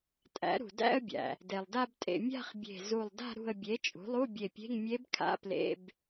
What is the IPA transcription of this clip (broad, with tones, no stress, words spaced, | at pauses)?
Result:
tʼæ̰˩˥ɾṳ˩dæ̰˥˧ə̯bʲæ̰˩ | de˩lˠda˥˧btʼḛ˧˩ mʲa̤˥˧χbʲe̤˧˩zu˧˩lˠda̤˥˧ ɾṳ˧˩ə̯bʲe˩˥ t͡ʃʼṳ˩˥lˠu˧˥˧bʲe˧˩pʲe̤˧˥˧ŋ mʲe˧˥bkʰa̰˧˥˧ plḛ˧˥˧b